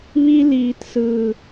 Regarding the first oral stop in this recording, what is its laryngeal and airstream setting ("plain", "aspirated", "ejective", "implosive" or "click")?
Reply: plain